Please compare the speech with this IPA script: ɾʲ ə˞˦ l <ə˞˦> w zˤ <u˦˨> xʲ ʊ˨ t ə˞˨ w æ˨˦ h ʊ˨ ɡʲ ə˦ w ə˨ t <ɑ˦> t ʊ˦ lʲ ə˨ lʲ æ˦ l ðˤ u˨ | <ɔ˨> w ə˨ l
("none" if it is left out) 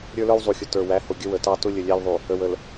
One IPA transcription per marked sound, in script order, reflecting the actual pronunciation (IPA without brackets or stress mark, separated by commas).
ə˞˦, u˨, ɑ˦, ə˨